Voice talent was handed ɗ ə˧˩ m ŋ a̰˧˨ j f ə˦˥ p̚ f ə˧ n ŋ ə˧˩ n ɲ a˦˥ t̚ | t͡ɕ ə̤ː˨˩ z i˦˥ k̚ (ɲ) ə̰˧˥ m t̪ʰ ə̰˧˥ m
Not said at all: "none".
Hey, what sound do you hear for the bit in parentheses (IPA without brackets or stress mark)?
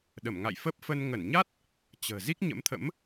ɲ